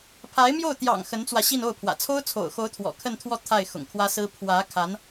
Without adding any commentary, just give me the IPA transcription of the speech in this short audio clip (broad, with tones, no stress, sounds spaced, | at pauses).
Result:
pʰ a˧˥ ɪ̯ m j o˥˩ ʊ̯ t̪ j ɑ̰˨˩ ŋ x ə˧˥ n t͡s w ä˧ ɕ i˥˧ n o˥˩ ʊ̯ pʰ w ä̰˨˩ t͡sʰ o˥ ʊ̯ t͡sʰ o̰˨˩ ʊ̯ x o˧˥ ʊ̯ t̪ʰ w ɔ̰˨˩ kʰ ə˥˧ n t̪ʰ w ɔ˥˧ t̪ʰ a˥˩ ɪ̯ x ʊ̰˨˩ ŋ kʰ w ä˥ s ɹ̩˥ pʰ w ä˧˥ kʰ a˧˥ n